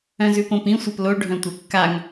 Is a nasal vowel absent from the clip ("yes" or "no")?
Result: no